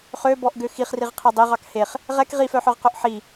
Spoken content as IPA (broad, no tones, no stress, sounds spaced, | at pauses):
χ ø b ɔ ʔ ɡ ø x i χ r i ʁ qʰ ɛ dˤ e ʁ ɑ k h e χ | ʁ ɛ k ʁ i f œ ħ œ ʁ q ɵ ʔ ħ i